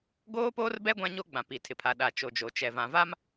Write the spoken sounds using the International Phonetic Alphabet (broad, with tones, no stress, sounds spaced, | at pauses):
ɡ oː˦ p oː˦ r b ɛ˦ ɡʷ ã˦ ɲ o˦ ɡ͡b ã˨ p i˨ tʰ ɪ˨ pʰ a˨ ɗ a˨ t͡ʃ o˨ d͡ʒ o˨ t͡ʃ ɛ˨ v ã˨ v a˦ m